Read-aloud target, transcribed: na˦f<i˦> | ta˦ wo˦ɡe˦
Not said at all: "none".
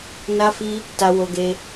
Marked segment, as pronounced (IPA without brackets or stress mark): i˦